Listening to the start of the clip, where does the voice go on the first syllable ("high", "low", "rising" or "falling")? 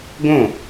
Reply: falling